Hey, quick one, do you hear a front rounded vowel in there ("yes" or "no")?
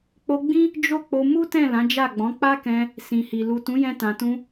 no